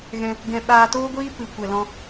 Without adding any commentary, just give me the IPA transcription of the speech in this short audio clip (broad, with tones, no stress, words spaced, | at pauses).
ɣɛ̃˧ | ɡɛ̃˧ ɓaː˧toː˦ɡʷiː˦ pɨ˨ kʷɛ˨lɔ̃˧